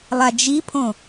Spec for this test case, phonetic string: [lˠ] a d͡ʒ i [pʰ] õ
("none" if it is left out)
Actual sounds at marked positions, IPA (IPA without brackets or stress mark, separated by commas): lˠ, pʰ